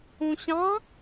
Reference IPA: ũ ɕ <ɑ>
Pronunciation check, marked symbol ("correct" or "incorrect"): incorrect